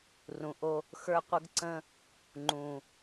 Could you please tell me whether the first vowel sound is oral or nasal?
nasal